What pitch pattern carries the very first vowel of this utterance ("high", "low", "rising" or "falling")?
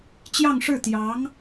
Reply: falling